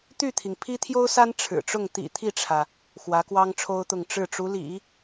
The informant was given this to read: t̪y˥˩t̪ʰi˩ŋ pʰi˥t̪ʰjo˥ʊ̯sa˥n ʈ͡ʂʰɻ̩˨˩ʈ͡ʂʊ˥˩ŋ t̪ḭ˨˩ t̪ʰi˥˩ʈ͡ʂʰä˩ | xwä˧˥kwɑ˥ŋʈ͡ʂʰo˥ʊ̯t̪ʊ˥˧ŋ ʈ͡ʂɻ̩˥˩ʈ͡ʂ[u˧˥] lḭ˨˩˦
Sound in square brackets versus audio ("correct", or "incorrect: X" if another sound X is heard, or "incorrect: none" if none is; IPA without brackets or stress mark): correct